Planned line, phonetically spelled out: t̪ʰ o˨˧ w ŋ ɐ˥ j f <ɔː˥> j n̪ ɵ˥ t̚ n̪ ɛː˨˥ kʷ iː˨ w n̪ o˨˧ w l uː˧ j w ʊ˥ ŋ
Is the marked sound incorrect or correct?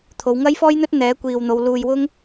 correct